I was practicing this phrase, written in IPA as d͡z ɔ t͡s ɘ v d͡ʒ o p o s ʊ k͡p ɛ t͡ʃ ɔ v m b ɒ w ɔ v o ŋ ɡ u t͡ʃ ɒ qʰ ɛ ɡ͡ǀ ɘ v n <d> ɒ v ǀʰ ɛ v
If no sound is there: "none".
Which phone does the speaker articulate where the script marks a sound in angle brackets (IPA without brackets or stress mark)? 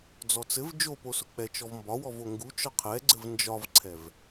d͡ʒ